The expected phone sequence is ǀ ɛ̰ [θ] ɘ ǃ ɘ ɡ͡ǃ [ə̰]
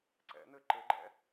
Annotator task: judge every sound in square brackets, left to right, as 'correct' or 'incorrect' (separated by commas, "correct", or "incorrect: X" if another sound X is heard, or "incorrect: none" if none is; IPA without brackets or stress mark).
incorrect: n̪, incorrect: ɛ̰